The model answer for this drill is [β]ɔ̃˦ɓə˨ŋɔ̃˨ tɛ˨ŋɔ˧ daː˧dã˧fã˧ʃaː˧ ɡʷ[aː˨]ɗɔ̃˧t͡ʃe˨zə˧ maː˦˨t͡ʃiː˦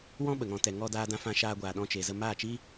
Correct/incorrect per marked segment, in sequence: incorrect: w, correct

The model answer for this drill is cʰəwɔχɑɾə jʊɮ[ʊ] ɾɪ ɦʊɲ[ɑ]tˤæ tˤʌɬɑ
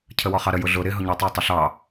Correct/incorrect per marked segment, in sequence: correct, incorrect: ʌ

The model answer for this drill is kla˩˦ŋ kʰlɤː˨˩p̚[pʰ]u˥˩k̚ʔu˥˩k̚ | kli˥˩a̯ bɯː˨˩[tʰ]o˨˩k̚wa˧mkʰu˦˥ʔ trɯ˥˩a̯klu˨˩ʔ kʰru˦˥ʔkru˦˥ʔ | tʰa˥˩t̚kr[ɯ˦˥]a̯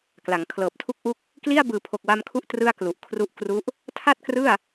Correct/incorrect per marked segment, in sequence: incorrect: tʰ, incorrect: pʰ, incorrect: ɯ˥˩

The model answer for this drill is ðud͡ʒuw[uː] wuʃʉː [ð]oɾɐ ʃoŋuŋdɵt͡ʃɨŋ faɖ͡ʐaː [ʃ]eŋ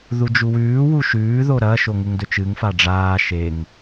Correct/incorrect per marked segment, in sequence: incorrect: ʉː, correct, correct

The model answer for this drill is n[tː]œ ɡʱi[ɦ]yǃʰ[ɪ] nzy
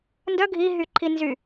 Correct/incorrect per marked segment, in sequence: incorrect: d, correct, incorrect: i

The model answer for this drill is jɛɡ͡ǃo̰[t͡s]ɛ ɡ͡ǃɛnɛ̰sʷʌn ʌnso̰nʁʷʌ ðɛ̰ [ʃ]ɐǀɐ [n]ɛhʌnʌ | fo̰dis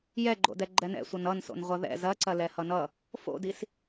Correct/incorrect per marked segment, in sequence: incorrect: d, incorrect: z, incorrect: l

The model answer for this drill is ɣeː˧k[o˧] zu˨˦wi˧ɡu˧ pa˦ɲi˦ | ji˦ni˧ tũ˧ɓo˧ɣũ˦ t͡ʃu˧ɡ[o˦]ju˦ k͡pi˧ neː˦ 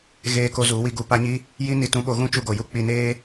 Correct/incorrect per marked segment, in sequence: correct, incorrect: o˨

